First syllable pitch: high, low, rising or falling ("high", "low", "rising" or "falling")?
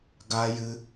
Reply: high